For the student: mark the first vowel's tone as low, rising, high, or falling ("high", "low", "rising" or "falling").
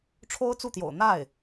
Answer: high